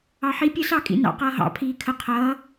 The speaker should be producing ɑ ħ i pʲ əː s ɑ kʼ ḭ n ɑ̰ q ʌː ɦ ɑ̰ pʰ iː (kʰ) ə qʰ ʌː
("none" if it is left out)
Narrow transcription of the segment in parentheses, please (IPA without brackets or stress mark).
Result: kʰ